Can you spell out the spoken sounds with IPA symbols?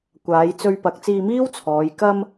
kʷaː˨˧jt͡sɵ˧ɥpɐ˨˥k̚ t͡siː˧miː˥w t͡sʰɔː˨˧j kɐ˧m

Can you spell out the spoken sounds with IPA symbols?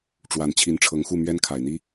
ʈ͡ʂwa˨˩n t͡ɕʰi˧˥nʈ͡ʂʰɤ˧˥ŋxu˥˩ mɥɛ˥nkʰa˨˩ɪ̯n̪i˥

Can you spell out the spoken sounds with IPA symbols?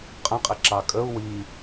qʼə̃qʼɪǁɑ kʼəu̯ wi

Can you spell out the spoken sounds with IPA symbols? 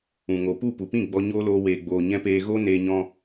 ũ˨ŋo˨ pu˦˨ pu˨pĩ˦˨ ɡ͡bɔ˧ ɲoː˦loː˧weː˨ɡ͡boː˨ ɲɛ̃˧peː˧ ɣo˦ neː˧ɲɔ̃˧

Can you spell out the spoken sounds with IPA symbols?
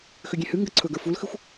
xʏɡʲẽhɨ ŋɡəǀʰɵɡə˞ fulxɨxʷ

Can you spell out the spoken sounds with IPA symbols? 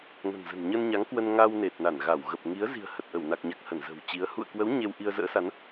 ŋə̤˨˩nzə̤˨˩nɲə˧nɲa˨˦ŋ kwə˧nŋa˧w ne˨˩t̚na˧˩nɣa˧˩w ɣə˨˩p̚ŋi˨˦ə̯zi̤˨˩ə̯ hə˨˩t̚ʔə˧˩wna˨˩k̚ɲa˨˩k̚ hə˧˩nzə̤˨˩wt͡ɕi˨˦ə̯ hṵ˧˨ə̯kwə˨˦w ɲe˧w ʔi˧ə̯ zə̰ː˧˥sa˨˦n

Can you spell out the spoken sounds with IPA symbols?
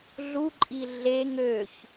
ɮuǃʼi ɮeŋ øç

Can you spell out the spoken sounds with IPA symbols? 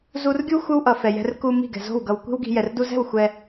zu˧rɡʲu˦ xʷɯ˦wʔʌ˨ fɛ˨jɛ̤˧r ku˧ mi̤˦˨ɡɛ̤˨zo̤˦˨w ɡʌ˨wkʷi̤˦wɡi̤˧ jɛ˨rdu˧zɛ̤˦˨w xʷɛ˧

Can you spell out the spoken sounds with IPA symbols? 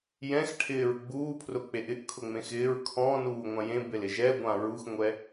jɛ̃xʈʰɪːɹ ɡ͡buːpʰrʊk͡peʔ ɪʔkʰʊŋ͡mẽ xɪːɹ kʰɔ̃ːnuːŋʷã jẽbelɪ ʒɛɡʷã ɹuxŋʷɛ

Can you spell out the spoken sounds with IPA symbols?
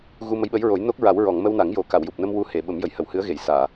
ɣu˧mə˧˥jɓə˧˥jɹo˨˩˦j no˦˥k̚ɹa˨˩˦w ɹɔ˨˩˨ŋ mə˧wna˨˩˦ŋ jo˨˩ka˨˩˨wju˨˩p̚nə˧m wu˧ he˨˩˨ɓə˨˩˦mjə˨˩j hə˨˩˨whɨ˧˥ə̯ɣe˨˩˨j saː˨˩˨

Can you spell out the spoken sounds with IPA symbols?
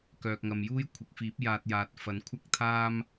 kœː˨k̚ŋɐ˨mjuː˥j kʷʰɪ˨k̚fiː˨˥p̚ jaː˧t̚jaː˨t̚ fɐ˨˧nkʷʰɐ˥k̚t̪ʰaː˥m

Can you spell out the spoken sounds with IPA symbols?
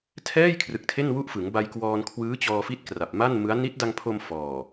tʰɛː˥˩jkʰrɯ˨˩k̚ tʰe˥˩nwu˥˩ʔfɯ˩˦ŋ ba˧jkwɔː˧n kʰwɯː˦˥t͡ɕɔː˧fi˦˥t̚ kra˨˩p̚ma˥˩nmɯ˦˥a̯ ni˦˥t̚da˧ŋpʰo˧m fɔː˨˩

